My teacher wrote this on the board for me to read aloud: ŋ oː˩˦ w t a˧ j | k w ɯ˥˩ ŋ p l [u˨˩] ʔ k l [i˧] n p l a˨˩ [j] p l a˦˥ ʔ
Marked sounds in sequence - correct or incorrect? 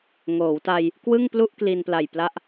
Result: incorrect: u˥˩, correct, correct

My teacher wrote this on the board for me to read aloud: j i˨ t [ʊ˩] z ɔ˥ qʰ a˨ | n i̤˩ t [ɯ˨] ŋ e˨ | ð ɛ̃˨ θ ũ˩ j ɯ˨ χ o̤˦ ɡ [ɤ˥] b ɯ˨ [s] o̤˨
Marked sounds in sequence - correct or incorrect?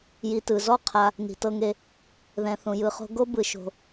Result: incorrect: ɯ˩, incorrect: ɤ˨, incorrect: o˥, incorrect: ʃ

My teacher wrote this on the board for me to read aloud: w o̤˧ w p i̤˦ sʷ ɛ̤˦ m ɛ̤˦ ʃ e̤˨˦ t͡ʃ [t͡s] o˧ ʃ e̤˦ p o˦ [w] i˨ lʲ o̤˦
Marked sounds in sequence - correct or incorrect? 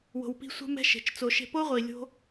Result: correct, incorrect: ʁʷ

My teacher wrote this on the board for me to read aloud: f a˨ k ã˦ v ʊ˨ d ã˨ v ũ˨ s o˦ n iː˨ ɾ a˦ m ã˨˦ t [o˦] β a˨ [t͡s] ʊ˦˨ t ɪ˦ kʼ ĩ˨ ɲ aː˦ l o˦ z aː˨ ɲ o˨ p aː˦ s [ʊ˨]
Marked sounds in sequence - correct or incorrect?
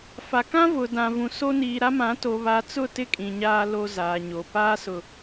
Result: incorrect: o˨, correct, correct

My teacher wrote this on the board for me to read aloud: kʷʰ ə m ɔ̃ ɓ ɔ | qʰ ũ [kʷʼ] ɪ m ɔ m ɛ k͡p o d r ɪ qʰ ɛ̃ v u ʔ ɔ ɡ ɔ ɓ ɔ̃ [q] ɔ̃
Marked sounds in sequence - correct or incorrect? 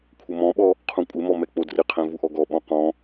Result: correct, correct

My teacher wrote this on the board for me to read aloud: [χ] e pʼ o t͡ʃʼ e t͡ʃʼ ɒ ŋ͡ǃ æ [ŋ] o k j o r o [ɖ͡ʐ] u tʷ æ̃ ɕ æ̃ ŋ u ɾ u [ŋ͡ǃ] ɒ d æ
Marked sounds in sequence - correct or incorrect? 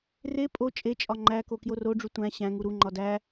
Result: incorrect: r, incorrect: k, correct, correct

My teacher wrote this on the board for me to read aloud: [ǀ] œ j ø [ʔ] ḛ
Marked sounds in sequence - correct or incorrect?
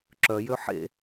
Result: incorrect: ǁ, incorrect: ħ

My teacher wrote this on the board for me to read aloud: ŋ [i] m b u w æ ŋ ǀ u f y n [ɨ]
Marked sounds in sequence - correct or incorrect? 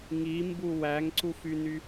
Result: correct, incorrect: y

